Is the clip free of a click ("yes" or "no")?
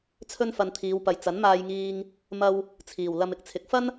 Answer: yes